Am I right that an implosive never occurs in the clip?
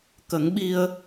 no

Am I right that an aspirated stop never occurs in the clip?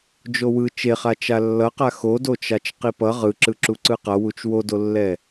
yes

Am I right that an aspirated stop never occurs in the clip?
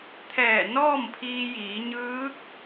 no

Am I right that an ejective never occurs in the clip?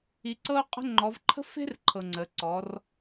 no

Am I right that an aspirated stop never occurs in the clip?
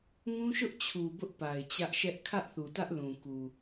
no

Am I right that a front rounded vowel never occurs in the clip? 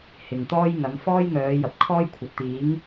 no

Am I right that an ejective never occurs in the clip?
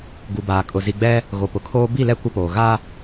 no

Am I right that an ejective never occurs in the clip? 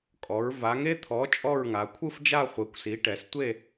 no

